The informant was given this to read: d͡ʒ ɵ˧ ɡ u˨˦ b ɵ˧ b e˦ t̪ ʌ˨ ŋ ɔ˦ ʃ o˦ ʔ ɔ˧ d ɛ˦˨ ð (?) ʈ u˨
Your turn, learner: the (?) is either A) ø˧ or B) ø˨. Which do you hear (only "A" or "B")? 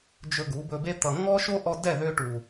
A